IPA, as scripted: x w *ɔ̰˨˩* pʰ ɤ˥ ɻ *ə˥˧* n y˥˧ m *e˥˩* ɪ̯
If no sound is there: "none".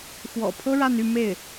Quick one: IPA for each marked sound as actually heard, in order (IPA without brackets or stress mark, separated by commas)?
ɔ̰˨˩, a˥˧, e˥˩